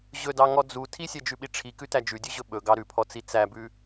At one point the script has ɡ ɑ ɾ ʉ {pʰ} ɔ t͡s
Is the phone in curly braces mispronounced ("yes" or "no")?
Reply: no